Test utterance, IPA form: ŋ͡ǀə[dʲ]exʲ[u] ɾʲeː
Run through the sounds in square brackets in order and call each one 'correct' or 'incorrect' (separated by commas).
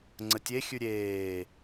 incorrect, incorrect